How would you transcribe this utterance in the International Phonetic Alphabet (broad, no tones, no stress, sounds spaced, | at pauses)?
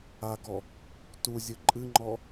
a ɡ ɔ | t u zʲ ɨ ǃʼ ɨ ŋ͡ǃ ɔ